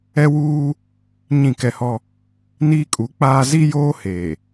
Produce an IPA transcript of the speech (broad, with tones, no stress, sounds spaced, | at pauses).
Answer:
ɛ˦ w uː˦ | ɲ ĩ˦˨ k ɛ˦ h ɔ˦ | n iː˦ kʼ u˨˦ k͡p aː˦ z i˦ j oː˦ h eː˨